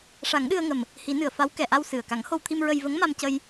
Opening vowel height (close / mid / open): open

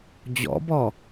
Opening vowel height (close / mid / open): mid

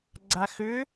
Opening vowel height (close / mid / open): open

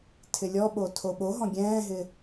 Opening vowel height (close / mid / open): close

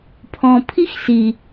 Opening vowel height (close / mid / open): mid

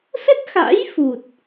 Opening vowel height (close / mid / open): mid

